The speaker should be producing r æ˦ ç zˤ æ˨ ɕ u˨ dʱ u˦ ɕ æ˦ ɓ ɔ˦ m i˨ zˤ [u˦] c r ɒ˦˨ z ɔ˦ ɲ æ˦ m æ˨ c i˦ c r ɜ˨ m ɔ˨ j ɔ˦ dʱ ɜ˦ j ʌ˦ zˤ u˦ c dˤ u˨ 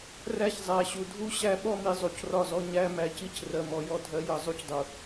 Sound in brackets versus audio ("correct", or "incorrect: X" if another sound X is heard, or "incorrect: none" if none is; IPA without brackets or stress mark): incorrect: u˨